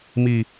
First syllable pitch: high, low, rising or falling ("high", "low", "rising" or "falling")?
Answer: low